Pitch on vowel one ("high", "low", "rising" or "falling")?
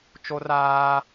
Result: high